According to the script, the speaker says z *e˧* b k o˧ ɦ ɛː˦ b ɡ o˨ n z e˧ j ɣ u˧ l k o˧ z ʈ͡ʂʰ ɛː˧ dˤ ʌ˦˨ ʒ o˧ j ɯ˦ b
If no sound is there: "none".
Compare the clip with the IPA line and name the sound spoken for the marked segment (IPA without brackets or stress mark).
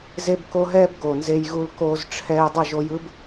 e˧